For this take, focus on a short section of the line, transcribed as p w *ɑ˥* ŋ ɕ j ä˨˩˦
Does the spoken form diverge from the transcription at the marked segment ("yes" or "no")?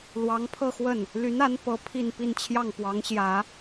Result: yes